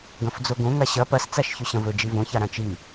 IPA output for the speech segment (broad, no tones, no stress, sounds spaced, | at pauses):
ɡ ɐ̃ f d͡z o ɡ õ ŋ a ɕ ɐ p ɐ s t͡s a ʃ ç ʉ ɕ ɐ̃ v ɵ d͡ʒ i v õ ç a ɾ ã t͡ʃ i